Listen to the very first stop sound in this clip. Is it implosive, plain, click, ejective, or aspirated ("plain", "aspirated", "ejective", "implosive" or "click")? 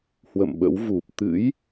implosive